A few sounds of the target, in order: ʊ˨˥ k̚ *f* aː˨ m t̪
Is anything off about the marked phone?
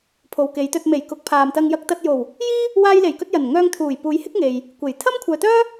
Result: yes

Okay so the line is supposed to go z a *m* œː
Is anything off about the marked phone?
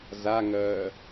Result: yes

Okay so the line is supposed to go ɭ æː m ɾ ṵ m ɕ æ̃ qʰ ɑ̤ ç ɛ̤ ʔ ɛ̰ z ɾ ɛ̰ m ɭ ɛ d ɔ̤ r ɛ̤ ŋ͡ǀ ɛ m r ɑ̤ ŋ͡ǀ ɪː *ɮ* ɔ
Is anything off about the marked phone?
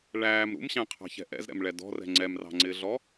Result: no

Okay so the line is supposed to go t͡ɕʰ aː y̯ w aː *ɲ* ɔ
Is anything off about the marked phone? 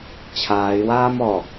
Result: yes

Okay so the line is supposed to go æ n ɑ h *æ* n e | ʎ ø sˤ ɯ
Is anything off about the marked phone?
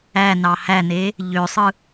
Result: no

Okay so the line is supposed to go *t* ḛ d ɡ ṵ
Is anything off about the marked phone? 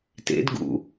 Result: no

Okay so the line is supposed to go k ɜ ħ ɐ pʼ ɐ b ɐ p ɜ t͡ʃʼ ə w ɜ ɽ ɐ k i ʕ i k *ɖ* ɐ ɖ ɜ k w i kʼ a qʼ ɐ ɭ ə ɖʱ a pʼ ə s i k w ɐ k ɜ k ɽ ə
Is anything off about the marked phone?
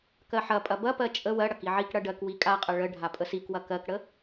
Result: yes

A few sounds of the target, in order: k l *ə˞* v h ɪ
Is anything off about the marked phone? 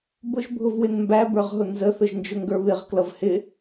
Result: yes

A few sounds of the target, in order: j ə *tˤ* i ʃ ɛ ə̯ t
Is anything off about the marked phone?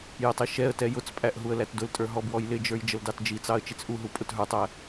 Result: no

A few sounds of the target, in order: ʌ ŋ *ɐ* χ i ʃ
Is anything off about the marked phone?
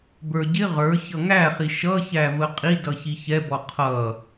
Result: yes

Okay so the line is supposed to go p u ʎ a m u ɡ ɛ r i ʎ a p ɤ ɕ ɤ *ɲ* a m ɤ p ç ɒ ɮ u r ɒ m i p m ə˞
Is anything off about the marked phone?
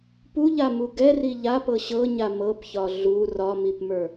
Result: no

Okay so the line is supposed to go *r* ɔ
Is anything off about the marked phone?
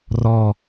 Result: no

